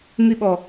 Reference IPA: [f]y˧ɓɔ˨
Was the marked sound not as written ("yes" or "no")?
yes